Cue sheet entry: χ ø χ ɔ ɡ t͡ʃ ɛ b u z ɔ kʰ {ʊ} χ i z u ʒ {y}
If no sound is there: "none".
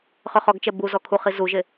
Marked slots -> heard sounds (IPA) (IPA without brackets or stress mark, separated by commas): u, e